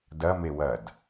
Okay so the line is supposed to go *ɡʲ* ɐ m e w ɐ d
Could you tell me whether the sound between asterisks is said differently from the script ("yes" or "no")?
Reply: yes